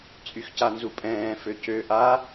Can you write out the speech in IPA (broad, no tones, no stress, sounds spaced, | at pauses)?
t͡sʼ y x c a n z u pʼ ɛ̃ː f ø c ø ʔ a